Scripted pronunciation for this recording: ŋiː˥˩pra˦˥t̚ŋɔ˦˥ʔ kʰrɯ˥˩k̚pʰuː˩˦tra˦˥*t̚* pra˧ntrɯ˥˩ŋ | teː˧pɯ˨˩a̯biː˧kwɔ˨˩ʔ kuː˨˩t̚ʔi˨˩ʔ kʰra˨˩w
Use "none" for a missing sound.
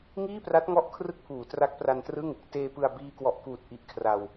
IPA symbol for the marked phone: k̚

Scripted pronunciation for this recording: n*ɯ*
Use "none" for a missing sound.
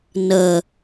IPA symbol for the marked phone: ə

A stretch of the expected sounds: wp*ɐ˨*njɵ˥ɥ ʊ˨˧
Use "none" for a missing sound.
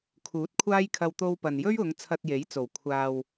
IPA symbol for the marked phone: ɐ˨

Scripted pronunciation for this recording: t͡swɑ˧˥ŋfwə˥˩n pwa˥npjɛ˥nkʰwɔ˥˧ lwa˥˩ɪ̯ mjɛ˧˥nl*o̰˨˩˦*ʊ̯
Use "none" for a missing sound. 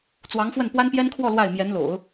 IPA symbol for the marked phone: o̰˨˩˦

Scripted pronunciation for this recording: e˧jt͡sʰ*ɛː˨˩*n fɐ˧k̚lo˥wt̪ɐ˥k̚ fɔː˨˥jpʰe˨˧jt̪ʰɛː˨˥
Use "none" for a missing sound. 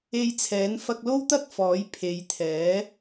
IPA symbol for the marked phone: ɛː˨˥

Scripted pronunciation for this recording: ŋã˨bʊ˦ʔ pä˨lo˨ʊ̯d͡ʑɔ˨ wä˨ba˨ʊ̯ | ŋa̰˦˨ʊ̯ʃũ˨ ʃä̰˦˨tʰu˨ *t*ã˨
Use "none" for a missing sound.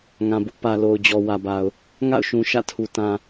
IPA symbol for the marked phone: t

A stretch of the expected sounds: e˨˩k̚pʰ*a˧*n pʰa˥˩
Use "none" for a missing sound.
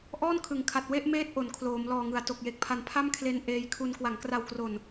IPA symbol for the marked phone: a˧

